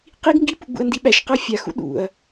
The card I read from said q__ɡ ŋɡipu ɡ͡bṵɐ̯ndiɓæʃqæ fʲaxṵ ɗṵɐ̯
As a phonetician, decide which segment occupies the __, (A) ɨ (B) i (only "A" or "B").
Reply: B